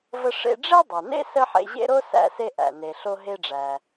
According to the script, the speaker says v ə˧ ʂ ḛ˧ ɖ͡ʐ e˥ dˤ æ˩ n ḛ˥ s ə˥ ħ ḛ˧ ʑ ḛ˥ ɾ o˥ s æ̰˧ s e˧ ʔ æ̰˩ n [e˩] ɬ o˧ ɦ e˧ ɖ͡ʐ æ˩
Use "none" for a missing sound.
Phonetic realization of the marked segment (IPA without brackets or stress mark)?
e˩